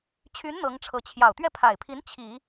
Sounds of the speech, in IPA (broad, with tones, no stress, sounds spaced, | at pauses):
t͡ɕʰ y˧˥ n n̪ ɤ˧˥ ŋ ʈ͡ʂʰ ɤ˧˥ t͡ɕʰ j ɑ˨˩ ʊ̯ t̪ ɥ ɛ˥˩ pʰ a˨˩ ɪ̯ pʰ i˧˥ n t͡ɕʰ i˨˩˦